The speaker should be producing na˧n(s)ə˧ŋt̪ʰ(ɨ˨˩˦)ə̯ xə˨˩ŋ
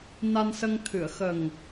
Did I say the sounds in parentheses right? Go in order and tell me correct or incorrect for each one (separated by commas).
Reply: correct, incorrect